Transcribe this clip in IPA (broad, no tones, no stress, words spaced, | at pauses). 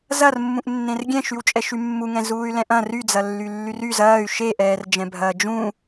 zɐrmːũʔ nːẽrɡʲɛ̃ʃywt͡ʃʼɛ ʃymːuŋɛ̃ zuːy̯lɛ̃ʔɐ̃ ryd͡zɐlːy lːyryz ɐːy̯ ʃeʔɛːrd͡ʒɛ̃bʱɐː d͡ʒũ